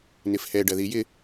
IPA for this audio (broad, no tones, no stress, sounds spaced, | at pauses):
n ɪ f h ɛ ɖ ɐ ð i j ɪ